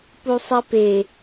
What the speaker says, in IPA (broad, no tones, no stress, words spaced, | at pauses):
pusˤipe